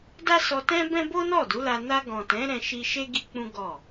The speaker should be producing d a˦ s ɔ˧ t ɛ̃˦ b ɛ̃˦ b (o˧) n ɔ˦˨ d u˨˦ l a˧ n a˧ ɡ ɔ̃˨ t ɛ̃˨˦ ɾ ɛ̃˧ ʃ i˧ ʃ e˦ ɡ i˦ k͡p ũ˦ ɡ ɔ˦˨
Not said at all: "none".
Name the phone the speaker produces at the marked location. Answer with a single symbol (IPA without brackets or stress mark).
o˦